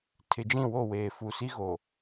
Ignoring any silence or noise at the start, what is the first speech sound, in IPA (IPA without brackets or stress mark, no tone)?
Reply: tʰ